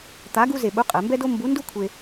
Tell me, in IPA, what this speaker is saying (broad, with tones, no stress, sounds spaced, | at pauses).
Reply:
t̪ a˧˥ ɡ u˥ z e˧ ɓ u˧˥ qʼ ɛ˩˧ m b ɛ˥ d o˥ m b u˧˥ n d u˥ kʷʰ e˧